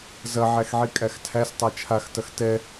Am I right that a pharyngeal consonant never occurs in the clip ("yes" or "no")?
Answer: no